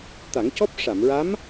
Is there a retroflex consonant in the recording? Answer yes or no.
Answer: yes